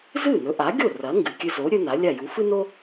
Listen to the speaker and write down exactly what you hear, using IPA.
zɨ˥˩nɵ˩˥ʔa˩˥ɡʲo˥˩ rɐ˩˥ŋɡɨ˩kʲɨ˧zo˩˥ ɾʲɵ˥na˩˥lʲa˥˩ ju˩˥fɨ˥no˥

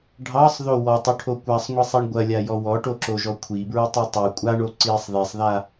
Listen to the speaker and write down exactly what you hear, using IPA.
ɖʱɑsˤðo wɔtˤuʈʰo kʷasˤŋʷisˤiɳ ɡʷɐlʲajɔ wɔʈoǁoʒɔ kʷʰibɹutˤi tˤu kʷʼaɳo ǀisˤ ðisˤða

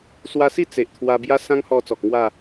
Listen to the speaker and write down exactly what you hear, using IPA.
swa˧si˥˧ t͡se˨ʔt̪ʰwa˧ bja˦sã˦ŋhɔ˧ t͡sɔ˨k̚ŋwa˥˧

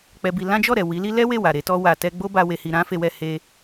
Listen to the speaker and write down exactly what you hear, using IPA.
k͡pɛ˧bi˧ lã˦d͡ʒɔ˦˨ɾɛ˨ wi˨˦li˦ lɛ˦we˦˨wa˨ ɾe˨˦tɔ˦wa˧ tɛ˧ ɡ͡bo˦ba˧ we˧hi˧ ɾã˦fe˧wɛ˧ he˧

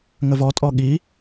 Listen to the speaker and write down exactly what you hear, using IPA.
ŋəvɔtʼɔ ɠi

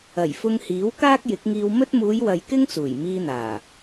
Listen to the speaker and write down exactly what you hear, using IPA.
ɐ˨˩jfʊ˧ŋhiː˨˥w kaː˥k̚jɪ˨˥k̚ŋiː˧wmɵ˥t̚ muː˨˧jwɐ˨j kɪ˥ŋt͡suː˨˩jmiː˧n̪aː˨˩

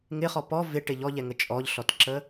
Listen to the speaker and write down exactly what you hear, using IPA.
ŋɪχɔ pɔ vɪʈɪ ʎɔʎɛŋə t͡ʃʼɔʎɬɔtǁə

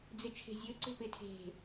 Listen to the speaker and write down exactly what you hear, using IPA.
d͡zɪt͡ʃʰe̤zʲɵǀe̤ pɪ tʰe̤

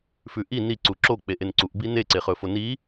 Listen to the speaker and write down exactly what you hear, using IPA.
fʉʔi ni ǀuǁo k͡peʔenǀuʔ bine ǀeχɵfoni

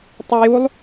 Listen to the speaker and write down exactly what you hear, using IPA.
tˤɛjulˠ

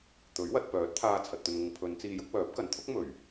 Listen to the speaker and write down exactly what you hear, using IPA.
t̪ɵ˨˥ɥwɐ˧t̚ pœː˨˥t̚t̪ʰaː˧ t͡sʰɐ˨t̚t̪ɵ˨nŋʊ˨ŋ pʰɵ˨˧nt͡siː˧jʊ˥k̚ wœː˨˥p̚kɐ˨˥nt̪ʰʊ˥k̚ mɵ˨˩ɥ

